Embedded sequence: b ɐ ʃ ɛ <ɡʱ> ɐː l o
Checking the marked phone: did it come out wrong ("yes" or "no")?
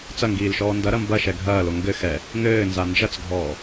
no